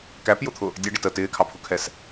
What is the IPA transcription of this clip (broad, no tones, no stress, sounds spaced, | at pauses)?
k æ p j ʊ t̪ʰ ʊ | dʲ æ ɖ ɪ t ə t ɪː kʰ ɑ pʰ ʊ kʰ ɛ s